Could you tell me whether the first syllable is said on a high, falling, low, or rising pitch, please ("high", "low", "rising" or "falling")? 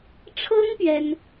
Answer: high